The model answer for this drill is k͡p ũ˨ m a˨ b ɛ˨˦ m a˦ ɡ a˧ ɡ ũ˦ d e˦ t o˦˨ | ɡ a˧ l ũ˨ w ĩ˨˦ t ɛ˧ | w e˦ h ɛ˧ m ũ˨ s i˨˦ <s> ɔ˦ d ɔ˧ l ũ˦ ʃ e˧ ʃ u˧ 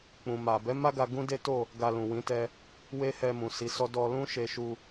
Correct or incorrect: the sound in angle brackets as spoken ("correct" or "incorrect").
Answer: correct